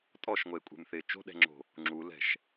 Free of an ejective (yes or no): no